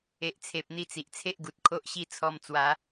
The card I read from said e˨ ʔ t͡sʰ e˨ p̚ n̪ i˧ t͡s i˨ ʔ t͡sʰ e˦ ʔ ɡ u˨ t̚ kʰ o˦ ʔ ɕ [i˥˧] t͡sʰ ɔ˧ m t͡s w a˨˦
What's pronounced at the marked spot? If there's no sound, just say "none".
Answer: i˥˧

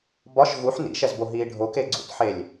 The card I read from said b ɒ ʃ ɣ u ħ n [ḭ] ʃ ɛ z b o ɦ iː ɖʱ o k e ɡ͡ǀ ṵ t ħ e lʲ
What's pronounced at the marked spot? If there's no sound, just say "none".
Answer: ḭ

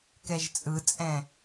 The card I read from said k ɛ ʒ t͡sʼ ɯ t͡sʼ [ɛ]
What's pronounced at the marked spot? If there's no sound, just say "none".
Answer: ɛ̃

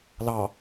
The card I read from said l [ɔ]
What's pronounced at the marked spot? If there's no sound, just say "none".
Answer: ɑ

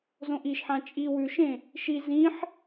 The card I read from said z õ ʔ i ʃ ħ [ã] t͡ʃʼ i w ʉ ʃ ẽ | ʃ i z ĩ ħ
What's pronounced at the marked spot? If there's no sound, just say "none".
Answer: ã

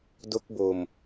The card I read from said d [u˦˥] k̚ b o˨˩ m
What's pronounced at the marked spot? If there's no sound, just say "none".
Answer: o˦˥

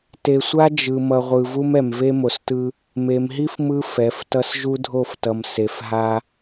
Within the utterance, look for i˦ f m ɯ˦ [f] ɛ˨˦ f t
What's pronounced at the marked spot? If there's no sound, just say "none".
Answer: f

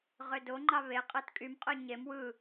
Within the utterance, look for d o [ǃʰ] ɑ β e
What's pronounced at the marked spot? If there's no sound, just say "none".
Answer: ŋ͡ǃ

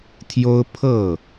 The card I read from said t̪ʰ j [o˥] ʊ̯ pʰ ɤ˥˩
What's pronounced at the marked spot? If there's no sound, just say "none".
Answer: o˥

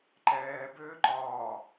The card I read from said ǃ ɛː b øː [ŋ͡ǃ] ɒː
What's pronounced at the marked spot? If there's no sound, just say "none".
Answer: ǃ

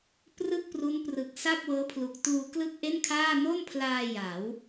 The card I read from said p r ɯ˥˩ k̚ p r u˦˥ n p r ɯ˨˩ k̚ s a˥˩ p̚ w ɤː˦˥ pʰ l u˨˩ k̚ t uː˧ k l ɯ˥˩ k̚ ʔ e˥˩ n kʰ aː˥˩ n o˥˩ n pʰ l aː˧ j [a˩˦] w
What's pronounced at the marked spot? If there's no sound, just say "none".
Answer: a˩˦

